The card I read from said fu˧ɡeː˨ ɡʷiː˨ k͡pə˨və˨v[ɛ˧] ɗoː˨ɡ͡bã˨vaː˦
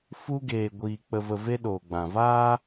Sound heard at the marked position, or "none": e˧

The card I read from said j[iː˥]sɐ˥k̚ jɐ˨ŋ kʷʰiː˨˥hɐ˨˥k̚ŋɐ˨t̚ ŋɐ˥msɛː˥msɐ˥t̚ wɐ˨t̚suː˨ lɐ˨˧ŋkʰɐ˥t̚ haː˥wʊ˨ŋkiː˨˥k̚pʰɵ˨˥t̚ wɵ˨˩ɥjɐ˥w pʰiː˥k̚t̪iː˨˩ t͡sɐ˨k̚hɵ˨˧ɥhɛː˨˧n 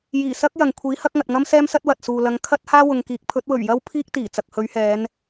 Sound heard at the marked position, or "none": iː˨˩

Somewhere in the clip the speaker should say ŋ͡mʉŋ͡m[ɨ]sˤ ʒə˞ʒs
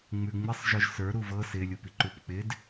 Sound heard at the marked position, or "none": ɪ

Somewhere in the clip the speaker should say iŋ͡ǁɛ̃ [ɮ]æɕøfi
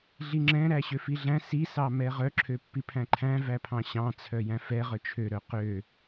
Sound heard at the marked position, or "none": ɾ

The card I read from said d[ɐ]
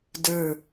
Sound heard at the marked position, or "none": ə˞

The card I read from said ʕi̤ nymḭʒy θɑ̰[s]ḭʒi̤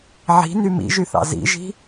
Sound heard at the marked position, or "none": z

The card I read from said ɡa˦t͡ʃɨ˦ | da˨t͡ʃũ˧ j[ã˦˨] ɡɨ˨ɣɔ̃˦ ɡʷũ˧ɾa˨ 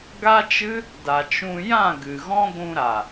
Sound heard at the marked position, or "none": ã˦˨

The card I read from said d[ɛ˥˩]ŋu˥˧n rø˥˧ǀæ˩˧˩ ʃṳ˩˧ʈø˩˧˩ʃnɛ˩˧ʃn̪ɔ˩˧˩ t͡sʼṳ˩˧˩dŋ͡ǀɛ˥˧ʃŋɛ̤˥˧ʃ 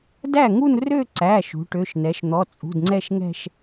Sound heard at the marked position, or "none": æ˥˩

